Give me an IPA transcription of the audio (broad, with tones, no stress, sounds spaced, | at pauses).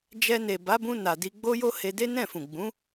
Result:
d͡ʒ ɛ˧ n e˨ b a˨˦ b ũ˧ n a˨ d i˧ ɡ͡b o˦ j o˦ h e˧ d e˦ n ɛ̃˦˨ f ũ˨ ɡ͡b ũ˨˦